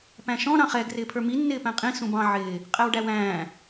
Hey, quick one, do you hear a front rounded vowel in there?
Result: no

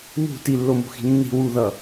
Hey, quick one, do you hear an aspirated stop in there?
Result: no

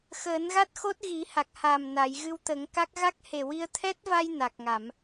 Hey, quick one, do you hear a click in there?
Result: no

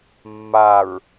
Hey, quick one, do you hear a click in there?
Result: no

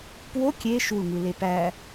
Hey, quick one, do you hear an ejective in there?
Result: no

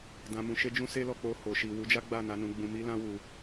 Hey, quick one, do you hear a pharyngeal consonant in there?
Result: no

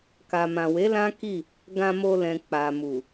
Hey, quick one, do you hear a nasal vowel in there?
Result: yes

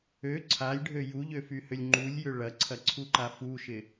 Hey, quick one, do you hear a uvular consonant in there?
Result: no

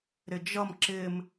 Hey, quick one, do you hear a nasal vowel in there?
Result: no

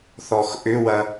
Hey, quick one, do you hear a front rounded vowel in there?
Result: yes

